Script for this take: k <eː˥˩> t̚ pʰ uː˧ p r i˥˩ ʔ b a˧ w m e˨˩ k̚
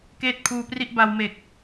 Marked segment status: correct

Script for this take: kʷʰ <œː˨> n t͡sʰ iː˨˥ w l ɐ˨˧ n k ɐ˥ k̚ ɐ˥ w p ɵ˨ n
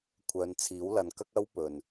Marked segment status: incorrect: œː˨˧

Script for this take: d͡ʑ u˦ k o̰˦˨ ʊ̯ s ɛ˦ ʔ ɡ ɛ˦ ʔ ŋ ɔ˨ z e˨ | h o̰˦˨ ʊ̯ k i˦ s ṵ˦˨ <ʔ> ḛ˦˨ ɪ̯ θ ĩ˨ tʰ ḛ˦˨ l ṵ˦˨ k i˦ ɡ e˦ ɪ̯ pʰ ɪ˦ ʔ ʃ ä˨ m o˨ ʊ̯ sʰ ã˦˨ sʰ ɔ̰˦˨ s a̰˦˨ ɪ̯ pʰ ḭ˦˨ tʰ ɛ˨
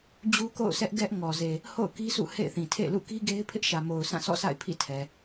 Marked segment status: incorrect: h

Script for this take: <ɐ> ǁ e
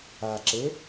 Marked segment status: incorrect: a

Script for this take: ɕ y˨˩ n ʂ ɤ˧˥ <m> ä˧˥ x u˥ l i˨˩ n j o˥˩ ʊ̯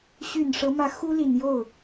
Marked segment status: correct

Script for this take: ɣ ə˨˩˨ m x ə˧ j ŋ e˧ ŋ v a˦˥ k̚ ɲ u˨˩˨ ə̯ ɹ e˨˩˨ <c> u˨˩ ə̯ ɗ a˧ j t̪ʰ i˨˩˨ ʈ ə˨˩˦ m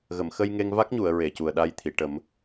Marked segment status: correct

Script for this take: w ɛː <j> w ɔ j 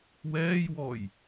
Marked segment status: correct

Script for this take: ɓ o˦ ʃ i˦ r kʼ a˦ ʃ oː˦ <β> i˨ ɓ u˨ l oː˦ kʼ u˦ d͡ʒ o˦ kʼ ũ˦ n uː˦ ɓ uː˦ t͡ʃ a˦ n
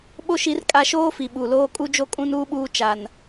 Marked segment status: incorrect: f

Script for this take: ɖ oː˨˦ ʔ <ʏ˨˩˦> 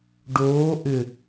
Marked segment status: incorrect: ʏ˨˩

